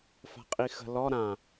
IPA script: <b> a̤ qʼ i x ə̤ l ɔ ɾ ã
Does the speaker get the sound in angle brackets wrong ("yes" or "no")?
yes